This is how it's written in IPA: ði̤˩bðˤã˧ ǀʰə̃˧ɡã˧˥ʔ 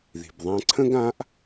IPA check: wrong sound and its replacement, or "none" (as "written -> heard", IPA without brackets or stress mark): ə̃˧ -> ə̃˥